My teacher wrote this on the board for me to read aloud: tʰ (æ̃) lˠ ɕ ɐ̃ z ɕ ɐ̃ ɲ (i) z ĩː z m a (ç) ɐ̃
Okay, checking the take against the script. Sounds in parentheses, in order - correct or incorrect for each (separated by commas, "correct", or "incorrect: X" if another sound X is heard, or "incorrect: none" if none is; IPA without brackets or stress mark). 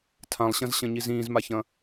incorrect: ã, correct, correct